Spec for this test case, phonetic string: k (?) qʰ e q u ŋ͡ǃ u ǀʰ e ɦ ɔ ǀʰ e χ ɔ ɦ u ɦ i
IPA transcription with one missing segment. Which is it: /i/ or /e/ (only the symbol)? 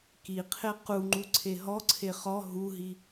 i